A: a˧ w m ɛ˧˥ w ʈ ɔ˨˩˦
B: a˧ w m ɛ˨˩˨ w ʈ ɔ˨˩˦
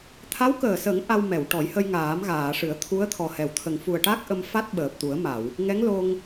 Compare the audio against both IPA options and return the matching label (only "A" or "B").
B